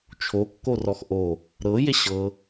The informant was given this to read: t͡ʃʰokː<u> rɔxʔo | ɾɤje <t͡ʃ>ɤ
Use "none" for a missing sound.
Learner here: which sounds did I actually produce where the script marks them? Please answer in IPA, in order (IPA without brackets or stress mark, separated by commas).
o, ɕ